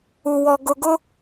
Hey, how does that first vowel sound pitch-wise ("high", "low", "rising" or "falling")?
low